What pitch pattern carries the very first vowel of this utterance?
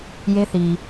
high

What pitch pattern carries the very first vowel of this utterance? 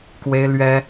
high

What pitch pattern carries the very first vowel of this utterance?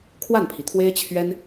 falling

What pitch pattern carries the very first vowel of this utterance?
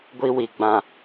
high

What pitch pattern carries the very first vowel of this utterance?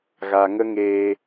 low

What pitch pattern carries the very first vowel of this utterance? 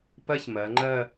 high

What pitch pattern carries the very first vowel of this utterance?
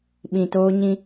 low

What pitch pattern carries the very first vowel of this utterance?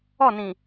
falling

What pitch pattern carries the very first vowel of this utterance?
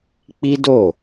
high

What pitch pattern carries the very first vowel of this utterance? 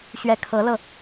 rising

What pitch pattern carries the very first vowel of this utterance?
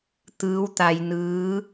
rising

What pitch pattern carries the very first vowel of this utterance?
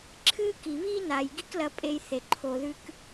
high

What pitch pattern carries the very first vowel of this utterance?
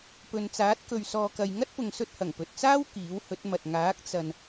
low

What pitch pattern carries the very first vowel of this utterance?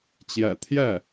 low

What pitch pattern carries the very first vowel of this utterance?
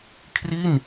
falling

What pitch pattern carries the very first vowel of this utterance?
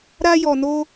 high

